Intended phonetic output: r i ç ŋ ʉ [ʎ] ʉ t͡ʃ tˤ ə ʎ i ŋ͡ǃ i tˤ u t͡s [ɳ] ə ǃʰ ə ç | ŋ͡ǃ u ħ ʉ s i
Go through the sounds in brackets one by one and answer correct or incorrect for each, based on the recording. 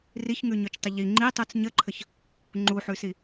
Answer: incorrect: ɲ, incorrect: ɲ

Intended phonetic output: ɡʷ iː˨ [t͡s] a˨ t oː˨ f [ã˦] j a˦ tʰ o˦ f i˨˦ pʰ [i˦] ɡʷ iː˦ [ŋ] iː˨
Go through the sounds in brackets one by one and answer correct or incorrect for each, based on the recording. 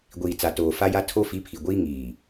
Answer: correct, incorrect: a˦, incorrect: i˨, correct

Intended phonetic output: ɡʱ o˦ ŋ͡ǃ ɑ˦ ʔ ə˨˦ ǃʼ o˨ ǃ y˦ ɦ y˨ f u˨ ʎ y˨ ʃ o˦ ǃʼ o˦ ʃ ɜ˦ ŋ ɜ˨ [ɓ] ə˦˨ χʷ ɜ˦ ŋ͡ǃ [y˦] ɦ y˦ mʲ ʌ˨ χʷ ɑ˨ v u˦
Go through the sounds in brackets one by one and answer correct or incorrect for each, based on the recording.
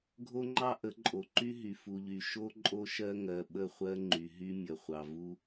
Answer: correct, incorrect: y˨

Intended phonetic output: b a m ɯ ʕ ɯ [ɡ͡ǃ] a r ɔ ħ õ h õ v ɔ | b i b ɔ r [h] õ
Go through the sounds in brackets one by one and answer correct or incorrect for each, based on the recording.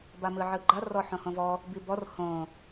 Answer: correct, correct

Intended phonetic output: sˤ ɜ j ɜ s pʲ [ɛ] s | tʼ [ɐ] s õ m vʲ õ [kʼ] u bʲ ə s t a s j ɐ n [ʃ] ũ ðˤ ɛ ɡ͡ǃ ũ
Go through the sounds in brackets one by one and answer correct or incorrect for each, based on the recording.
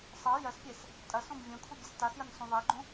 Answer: correct, correct, incorrect: kʰ, incorrect: s

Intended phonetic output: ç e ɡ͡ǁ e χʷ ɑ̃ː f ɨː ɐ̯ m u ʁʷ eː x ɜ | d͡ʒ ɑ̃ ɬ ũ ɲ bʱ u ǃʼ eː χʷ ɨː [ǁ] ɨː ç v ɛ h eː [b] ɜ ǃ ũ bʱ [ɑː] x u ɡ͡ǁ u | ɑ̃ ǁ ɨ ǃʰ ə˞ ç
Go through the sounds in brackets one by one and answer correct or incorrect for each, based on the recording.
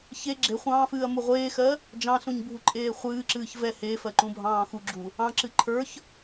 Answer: correct, incorrect: f, incorrect: ɑ̃ː

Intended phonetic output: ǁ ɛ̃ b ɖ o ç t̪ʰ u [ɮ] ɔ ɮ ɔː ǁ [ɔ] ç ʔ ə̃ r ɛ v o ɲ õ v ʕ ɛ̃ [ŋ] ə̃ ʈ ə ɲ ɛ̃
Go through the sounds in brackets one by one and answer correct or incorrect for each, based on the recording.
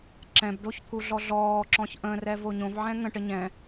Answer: correct, incorrect: ɔ̃, correct

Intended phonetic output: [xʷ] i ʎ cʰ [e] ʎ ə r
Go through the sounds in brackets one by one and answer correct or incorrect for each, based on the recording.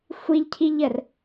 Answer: correct, incorrect: i

